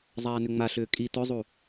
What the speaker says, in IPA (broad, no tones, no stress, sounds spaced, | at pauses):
zˤ aː n ʏ ŋ͡m a ɬ ʏː kʼ i t ɵ zˤ u